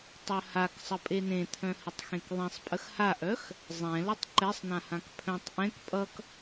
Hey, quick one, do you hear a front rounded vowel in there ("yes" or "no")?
yes